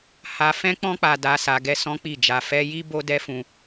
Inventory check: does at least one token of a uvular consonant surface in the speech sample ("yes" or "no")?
no